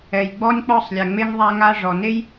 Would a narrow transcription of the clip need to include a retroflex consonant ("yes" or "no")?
yes